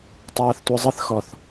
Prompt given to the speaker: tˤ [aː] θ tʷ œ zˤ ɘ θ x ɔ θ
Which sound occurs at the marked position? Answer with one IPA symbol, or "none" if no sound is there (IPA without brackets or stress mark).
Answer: aː